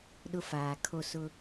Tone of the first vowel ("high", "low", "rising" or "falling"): high